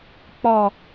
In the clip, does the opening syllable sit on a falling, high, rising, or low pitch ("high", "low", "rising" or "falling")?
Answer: low